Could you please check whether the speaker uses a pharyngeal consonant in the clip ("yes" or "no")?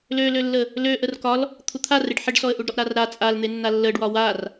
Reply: yes